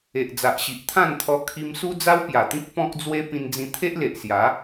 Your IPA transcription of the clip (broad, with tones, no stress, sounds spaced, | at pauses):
e˨ ʔ d͡z a˨ ʔ ɕ i˨ ʔ t̪ʰ ã˥˧ n t̪ʰ ɔ˧ kʰ i˧ m s u˦ d͡z a˦ w p j a˨˩ t̪ ĩ˦ k̚ p ɔ̃˦ k̚ d͡z w e˦ p ĩ˧ n d͡z ĩ˧ t̪ʰ e˦ ʔ l e˨ ʔ s j a˨˦